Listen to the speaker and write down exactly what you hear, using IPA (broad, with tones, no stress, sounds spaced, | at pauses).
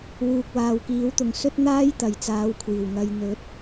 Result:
w uː˨ k̚ w aː˨ w k iː˨˥ w t̪ ʊ˨ ŋ s ɵ˥ t̚ n̪ aː˥ j t̪ ɐ˨ j t͡s aː˨˧ w kʷʰ iː˨˩ w ŋ ɐ˨ j n̪ ɵ˨˥ t̚